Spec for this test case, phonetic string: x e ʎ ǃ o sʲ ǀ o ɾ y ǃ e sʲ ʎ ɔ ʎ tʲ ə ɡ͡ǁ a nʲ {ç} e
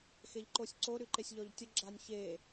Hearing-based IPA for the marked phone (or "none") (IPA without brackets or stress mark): ç